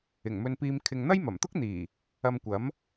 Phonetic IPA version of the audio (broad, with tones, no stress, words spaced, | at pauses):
ɪ˨˩ŋmɵ˧npiː˧m kʰɪ˧ŋ n̪ɐ˥jmɐ˨˩mt̪ʊ˥k̚n̪iː˨˩ | ɐ˧mkʷɐ˨˥m